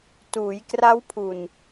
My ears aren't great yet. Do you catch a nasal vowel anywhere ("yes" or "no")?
no